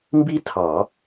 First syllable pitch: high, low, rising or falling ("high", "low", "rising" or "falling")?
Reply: high